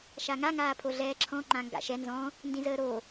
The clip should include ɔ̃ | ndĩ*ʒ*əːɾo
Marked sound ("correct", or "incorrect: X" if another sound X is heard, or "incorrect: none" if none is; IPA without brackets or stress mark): incorrect: z